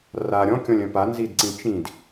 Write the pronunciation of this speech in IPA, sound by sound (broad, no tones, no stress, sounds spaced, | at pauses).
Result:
r a ɾʲ ɔ̃ kʲ ɔ̃ lʲ œ̃ p a n z i d ǀ ĩ t͡ʃ ĩ d